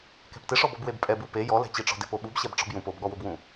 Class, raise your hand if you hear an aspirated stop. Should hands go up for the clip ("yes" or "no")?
no